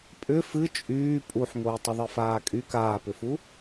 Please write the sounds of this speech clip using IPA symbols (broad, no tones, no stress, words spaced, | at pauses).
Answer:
pʼʏ fɨ t͡ʃʼyː pʼuħŋou̯ tˤəðˤɨfaːkʼy kaːpʏfu